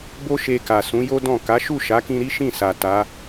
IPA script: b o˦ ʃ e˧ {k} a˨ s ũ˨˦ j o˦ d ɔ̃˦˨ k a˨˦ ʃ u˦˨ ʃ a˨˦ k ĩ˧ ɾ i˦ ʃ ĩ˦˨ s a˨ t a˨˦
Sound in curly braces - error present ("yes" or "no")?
no